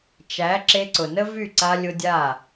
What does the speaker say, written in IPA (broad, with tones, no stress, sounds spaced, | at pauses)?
t͡ʃ æ˨˦ ǁ e˧ ǀ ʊ˨ n ə˦ v y˦˨ ǀ a˧ lʲ ʊ˧ dʲ a˦˨